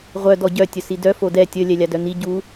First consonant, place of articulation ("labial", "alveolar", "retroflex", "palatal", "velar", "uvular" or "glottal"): uvular